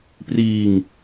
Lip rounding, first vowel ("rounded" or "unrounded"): unrounded